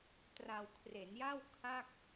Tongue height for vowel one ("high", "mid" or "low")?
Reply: low